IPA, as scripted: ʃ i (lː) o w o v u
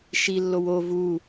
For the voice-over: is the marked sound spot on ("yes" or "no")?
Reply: yes